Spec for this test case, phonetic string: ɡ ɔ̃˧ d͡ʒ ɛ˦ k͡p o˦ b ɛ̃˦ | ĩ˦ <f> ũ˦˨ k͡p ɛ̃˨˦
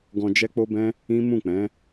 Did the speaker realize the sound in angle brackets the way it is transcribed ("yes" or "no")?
no